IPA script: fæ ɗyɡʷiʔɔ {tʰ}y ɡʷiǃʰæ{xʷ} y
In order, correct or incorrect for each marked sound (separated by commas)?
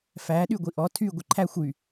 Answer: correct, correct